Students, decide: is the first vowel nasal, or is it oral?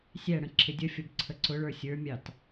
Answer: oral